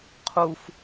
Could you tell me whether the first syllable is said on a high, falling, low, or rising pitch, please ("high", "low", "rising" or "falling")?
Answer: low